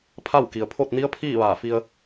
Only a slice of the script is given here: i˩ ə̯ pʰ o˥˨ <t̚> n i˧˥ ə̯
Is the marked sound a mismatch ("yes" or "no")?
no